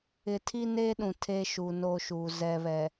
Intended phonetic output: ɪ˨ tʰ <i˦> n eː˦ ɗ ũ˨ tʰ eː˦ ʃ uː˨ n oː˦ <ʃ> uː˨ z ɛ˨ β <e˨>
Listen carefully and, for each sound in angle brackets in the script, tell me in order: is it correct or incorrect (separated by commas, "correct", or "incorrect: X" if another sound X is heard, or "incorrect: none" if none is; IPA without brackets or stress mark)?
correct, correct, incorrect: ɛ˨